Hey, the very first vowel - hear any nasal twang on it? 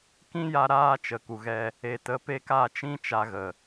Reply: yes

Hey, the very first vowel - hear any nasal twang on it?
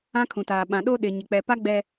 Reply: yes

